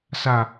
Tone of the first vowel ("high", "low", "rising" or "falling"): low